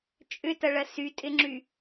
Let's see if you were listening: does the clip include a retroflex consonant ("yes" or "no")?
yes